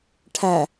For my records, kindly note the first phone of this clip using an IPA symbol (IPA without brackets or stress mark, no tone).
ʈʰ